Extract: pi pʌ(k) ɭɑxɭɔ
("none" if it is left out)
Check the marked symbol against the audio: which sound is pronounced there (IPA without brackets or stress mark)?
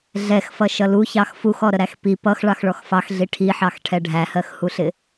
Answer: x